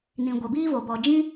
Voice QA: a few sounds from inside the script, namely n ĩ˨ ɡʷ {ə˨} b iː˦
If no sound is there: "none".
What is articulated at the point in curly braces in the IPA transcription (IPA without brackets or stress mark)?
ɛ˨